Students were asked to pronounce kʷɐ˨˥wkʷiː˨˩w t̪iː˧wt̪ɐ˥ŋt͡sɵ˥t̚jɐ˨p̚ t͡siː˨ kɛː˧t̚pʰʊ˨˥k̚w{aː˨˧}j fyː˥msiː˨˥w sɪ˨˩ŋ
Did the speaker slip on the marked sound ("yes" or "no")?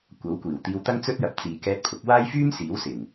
yes